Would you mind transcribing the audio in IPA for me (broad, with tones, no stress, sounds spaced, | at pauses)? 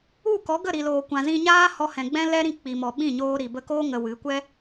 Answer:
u˦˨ k ɔ˨˦ ɡ ə˦˨ ɾ i˨ l oː˨ kʷ ã˨ z ĩ˧ ɲ aː˦ h ɔ˧ h ɛ̃˨ ɡ͡b ɛ̃˦ l ɛ˦ ɾ ĩ˧ k͡p i˨ m ɔ˨ ɓ ĩ˦˨ ɲ oː˧ ɾ i˨ b ə˧ k oː˦ ŋ ə˧ w ɨ˨˦ kʷ ɛ˦